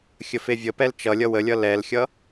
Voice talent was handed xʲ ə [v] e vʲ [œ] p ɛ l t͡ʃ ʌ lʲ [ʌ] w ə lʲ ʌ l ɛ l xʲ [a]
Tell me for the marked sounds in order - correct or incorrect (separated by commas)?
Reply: incorrect, incorrect, correct, incorrect